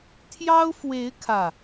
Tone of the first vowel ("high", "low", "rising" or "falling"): high